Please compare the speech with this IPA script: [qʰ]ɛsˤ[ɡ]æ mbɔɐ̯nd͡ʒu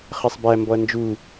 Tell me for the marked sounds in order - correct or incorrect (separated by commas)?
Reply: incorrect, incorrect